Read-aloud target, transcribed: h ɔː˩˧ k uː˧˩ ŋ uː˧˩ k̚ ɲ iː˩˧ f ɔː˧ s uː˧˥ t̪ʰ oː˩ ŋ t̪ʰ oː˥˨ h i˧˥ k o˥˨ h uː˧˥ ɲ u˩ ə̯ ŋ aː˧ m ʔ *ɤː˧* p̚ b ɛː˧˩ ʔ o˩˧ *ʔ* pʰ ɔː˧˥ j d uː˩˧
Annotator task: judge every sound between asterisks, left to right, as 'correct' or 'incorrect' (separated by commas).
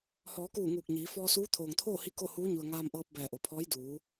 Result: correct, incorrect